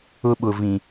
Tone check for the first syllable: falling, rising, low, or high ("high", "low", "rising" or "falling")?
high